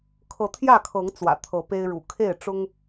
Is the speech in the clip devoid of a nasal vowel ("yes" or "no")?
yes